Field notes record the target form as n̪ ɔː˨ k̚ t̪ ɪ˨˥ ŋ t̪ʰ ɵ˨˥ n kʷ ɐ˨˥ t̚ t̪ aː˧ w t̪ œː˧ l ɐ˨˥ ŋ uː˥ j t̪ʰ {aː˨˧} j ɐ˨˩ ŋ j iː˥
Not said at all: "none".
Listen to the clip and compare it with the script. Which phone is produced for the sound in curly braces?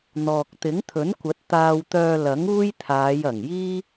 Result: aː˨˧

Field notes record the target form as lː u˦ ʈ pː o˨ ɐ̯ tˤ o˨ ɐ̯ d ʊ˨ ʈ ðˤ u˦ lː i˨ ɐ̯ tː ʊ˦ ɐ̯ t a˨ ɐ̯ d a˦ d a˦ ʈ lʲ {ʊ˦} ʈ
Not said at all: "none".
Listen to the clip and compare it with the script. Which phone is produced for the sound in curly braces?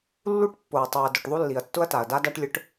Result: ʊ˦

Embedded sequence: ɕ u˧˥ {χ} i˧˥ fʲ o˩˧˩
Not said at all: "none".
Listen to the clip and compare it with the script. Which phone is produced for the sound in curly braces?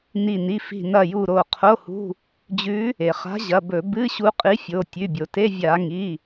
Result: qʼ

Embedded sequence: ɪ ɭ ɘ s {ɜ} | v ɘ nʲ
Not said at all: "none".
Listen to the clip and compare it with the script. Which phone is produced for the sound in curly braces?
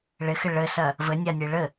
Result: ɜ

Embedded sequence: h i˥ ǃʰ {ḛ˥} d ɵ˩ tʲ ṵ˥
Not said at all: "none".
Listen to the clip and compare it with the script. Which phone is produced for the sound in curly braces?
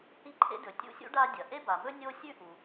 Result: ḛ˥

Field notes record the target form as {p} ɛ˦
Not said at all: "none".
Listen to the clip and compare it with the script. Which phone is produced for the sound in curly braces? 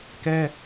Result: k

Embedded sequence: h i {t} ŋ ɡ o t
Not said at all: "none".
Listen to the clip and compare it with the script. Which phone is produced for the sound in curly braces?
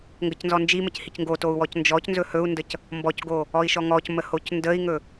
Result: c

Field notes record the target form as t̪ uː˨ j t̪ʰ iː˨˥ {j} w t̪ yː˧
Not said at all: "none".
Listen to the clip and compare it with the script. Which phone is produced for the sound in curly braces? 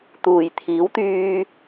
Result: none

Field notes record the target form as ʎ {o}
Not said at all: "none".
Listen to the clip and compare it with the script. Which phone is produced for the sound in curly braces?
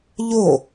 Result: o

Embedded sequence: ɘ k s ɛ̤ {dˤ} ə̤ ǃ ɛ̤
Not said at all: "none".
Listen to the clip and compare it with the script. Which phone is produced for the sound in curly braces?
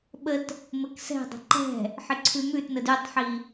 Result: dˤ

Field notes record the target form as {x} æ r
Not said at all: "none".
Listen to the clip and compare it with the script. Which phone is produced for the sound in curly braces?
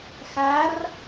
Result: x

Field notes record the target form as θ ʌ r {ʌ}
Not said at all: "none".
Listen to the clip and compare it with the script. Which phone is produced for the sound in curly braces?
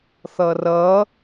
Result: ʌ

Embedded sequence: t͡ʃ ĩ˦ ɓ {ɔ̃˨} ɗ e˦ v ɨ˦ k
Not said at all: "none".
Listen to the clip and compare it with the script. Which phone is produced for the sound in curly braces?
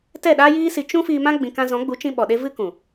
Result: ɔ˨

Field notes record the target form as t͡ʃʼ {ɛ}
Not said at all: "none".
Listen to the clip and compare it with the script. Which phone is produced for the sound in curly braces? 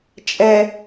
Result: ɛ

